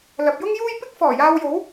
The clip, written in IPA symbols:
l ɐ˨ p̚ j ʊ˥ ŋ j uː˥ j p ɪ˥ k̚ f ɔː˨˩ j aː˧ w j o˨˥ w

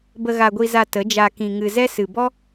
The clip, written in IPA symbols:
b ə˧ ɣ a˧ ɡʷ i˧ z a˧ t ə˨˦ d͡ʒ a˧ k ĩ˧ ŋ ɨ˧ z ɛ˦ s ɨ˨ b ɔ˦

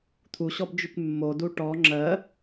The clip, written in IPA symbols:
t̪ʰ u ɕ ɔ b d͡ʒ y k mː o d u ʈ ɔ ŋ͡ǁ ɜ

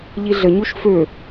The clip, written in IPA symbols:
ʎ i ɮ ə ɲ u ʃ f ø

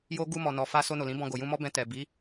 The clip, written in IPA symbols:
j o˦ ɡ u˧ m ɔ˨ n ɔ˨ f a˧ s o˧ n o˨ l ĩ˨˦ b ɔ̃˧ ɡ o˨ j ũ˧ m ɔ˦ b ɛ̃˧ t ɛ˨ b i˨˦

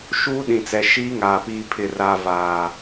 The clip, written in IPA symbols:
ʃ uː˦ ɗ ĩ˨ t͡s ɛ˨ ʃ iː˦ ŋ aː˨ p iː˨ pʰ ɪ˨ r aː˨ v aː˨

